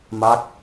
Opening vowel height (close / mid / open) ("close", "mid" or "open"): open